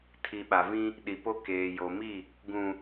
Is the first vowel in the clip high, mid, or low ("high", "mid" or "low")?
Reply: high